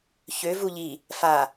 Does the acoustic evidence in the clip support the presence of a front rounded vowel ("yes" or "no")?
yes